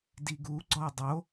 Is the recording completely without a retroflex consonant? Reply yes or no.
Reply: yes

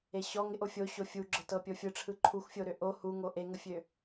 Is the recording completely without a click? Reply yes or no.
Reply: no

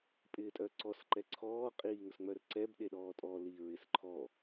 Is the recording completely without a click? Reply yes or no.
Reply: no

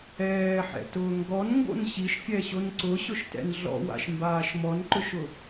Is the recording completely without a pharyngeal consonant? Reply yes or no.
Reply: no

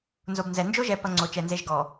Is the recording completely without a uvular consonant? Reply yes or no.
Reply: yes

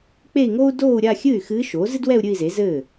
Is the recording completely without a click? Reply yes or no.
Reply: yes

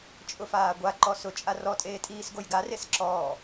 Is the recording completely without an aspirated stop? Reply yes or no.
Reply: yes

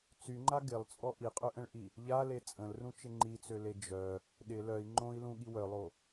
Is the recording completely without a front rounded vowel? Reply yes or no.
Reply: no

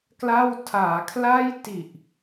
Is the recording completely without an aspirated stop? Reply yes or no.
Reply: no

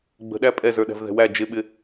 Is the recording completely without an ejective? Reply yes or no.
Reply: no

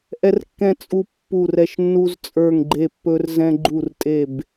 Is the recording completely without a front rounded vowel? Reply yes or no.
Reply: yes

